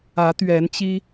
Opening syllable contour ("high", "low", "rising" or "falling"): rising